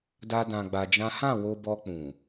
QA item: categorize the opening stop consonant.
plain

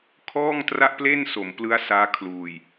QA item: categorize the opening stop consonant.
aspirated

